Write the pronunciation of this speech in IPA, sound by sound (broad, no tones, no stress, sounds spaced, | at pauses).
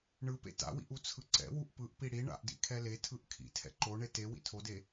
ɳ ɯ p ḛ t a̰ w ḭ ʔ u t͡sʰ ɯ ǀ ɛ̰ w u ʔ p ɯ ʔ p i ɽ i ɳ a̰ ʔ d ḭ kʰ ɛ l e tʰ ɯ ʔ kʰ ḭ tʰ ɛ̰ ǃ o ɳ e t e w ḭ tʰ o d e